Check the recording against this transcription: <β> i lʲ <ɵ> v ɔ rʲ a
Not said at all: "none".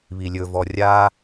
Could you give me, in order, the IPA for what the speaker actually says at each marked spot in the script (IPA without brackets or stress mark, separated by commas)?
β, ɵ